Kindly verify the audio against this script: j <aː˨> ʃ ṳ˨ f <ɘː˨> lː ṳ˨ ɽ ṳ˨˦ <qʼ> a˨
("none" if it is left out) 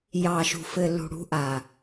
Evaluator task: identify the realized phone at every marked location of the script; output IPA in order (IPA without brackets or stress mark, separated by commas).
ɑː˨, ɘː˨, ʔ